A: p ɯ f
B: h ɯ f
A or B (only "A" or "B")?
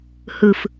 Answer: B